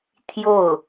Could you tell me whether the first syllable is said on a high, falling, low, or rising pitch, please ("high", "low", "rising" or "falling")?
falling